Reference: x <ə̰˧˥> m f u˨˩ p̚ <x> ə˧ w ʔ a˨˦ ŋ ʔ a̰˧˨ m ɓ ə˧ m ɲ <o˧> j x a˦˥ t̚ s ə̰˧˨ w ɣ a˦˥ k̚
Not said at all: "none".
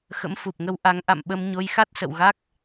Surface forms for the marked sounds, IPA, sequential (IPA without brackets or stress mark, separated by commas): ə̰˧˥, ŋ, o˧